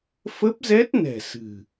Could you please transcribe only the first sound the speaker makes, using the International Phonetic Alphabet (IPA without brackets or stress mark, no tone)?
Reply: f